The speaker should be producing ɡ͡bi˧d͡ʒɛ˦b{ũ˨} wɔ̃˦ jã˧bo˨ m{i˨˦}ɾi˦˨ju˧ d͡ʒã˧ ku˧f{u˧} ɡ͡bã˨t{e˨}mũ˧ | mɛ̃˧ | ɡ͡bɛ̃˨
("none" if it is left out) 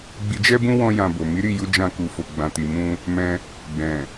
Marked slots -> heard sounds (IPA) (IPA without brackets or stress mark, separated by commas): ũ˦, i˨˦, o˧, i˨